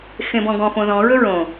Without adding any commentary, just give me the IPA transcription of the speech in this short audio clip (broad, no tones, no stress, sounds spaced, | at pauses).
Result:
x ẽ b ɔ̃ ɡ ɔ̃ f õ ð ɔ̃ ɹ ɵ ɹ õ